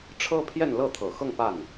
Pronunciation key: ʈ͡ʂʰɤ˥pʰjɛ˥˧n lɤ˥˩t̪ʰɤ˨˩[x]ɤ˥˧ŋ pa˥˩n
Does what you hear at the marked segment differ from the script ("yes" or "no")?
no